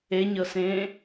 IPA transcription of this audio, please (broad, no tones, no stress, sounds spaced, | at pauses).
e ɲ ɤ s ẽː